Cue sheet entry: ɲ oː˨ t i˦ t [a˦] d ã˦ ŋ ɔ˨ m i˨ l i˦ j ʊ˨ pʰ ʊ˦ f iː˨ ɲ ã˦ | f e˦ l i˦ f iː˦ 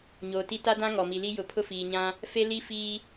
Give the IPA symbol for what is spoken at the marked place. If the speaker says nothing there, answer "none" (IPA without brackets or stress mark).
a˦